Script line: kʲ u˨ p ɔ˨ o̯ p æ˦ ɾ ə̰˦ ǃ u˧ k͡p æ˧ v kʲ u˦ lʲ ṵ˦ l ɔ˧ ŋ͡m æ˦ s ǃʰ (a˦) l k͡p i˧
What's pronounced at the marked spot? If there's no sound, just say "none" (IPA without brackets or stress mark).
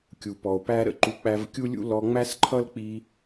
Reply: ʌ˦